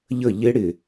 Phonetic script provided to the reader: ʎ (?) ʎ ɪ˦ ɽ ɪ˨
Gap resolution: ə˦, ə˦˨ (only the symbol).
ə˦˨